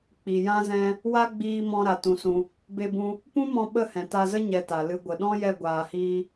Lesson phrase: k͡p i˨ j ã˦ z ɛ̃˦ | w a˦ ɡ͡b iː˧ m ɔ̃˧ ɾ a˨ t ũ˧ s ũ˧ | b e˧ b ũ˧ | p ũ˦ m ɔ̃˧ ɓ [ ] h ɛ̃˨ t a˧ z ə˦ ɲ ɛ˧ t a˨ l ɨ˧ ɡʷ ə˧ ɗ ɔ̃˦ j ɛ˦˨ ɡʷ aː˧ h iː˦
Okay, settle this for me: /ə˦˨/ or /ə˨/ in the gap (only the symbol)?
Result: ə˦˨